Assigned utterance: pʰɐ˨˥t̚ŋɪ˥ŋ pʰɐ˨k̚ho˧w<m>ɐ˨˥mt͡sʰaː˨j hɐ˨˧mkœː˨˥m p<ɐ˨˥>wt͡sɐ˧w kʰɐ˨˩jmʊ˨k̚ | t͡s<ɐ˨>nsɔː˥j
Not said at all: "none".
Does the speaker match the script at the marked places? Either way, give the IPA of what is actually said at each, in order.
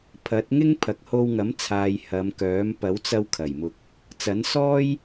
ŋ, ɐ˨˥, ɐ˨˥

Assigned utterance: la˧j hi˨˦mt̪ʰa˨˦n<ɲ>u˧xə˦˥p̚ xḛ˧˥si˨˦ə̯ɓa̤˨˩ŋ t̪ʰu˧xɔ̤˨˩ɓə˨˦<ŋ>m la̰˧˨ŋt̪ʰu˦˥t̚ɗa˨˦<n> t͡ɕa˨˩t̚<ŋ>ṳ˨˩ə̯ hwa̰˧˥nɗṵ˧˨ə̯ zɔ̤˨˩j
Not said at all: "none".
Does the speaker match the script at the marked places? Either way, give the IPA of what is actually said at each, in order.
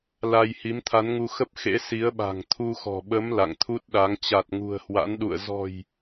ŋ, none, ŋ, ŋ

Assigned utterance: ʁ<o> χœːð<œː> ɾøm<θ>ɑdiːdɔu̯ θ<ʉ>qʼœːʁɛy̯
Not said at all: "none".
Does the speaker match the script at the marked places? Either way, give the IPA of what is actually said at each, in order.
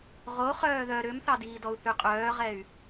o, œ, θ, ʉ

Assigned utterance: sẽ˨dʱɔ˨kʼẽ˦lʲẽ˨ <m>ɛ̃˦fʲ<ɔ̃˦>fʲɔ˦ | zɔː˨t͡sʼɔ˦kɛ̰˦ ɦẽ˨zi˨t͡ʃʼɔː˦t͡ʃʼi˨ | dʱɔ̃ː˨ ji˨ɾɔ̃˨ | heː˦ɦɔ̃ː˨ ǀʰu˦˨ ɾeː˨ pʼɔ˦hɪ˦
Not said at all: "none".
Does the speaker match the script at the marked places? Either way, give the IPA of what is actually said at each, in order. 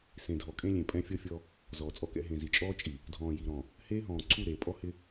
pʼ, ɔ˦

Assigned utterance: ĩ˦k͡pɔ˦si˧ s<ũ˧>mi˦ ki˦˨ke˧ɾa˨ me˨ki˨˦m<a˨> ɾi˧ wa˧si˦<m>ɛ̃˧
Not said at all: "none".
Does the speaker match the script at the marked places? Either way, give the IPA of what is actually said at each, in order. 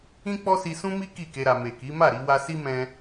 ũ˦, a˦˨, m

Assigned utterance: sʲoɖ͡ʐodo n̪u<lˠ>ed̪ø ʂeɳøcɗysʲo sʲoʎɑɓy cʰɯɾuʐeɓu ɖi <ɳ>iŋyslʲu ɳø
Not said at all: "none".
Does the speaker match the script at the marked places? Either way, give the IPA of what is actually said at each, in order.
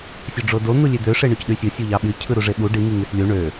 lʲ, ŋ

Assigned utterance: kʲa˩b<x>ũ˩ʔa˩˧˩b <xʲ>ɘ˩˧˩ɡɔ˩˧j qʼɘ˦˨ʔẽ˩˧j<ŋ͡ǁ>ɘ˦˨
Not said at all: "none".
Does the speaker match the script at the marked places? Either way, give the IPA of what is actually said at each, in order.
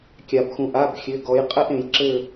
x, xʲ, ǁ

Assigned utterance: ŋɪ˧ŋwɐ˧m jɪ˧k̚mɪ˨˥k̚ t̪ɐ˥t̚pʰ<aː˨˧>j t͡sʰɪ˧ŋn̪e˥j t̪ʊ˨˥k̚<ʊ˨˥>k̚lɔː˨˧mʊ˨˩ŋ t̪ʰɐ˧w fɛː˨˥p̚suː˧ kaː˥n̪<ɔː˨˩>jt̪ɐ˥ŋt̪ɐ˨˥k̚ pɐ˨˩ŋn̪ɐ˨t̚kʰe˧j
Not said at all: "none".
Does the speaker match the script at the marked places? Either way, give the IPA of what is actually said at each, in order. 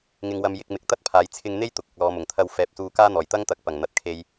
aː˨˧, ʊ˨, ɔː˨˩

